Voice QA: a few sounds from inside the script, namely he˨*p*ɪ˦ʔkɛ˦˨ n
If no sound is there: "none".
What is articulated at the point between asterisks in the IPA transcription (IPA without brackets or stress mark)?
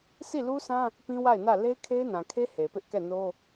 p